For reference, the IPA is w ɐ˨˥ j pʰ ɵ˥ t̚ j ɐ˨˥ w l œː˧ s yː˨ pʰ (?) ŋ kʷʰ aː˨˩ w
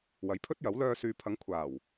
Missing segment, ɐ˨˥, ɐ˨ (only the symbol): ɐ˨˥